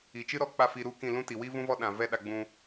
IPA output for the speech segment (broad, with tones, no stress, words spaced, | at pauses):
i˨t͡ʃɨ˦ɾɔ˦˨ k͡pa˦˨fi˧ ɾu˦kĩ˦˨lũ˦ti˨ wi˦vũ˦vɔ˦ ɗã˨ vɛ˦ɗa˧ɡ͡bũ˧